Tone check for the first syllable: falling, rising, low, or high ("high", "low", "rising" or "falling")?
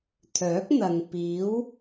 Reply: rising